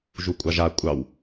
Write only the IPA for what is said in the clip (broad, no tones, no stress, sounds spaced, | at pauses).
ʒ u kʷʼ ɑ ʒ a kʷʼ ɑ w